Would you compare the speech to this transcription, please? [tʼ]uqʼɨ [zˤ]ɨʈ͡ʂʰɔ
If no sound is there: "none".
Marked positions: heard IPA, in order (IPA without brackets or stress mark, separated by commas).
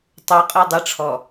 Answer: tˤ, dˤ